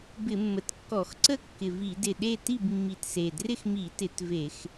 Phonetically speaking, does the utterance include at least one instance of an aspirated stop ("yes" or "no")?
no